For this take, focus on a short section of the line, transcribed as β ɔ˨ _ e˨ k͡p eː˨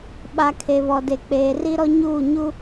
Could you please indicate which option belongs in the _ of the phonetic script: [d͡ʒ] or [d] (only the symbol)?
d